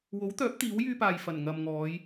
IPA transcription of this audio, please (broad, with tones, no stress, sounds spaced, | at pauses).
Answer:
w o˨˥ w t̪ œː˨˥ p̚ t̪ iː˨˥ w j yː˧ p aː˨ j f ɐ˨˩ n ŋ ɐ˨ m ŋ ɔː˨˧ j